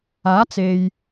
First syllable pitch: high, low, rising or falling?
rising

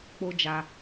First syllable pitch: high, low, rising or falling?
high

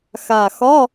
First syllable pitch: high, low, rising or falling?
low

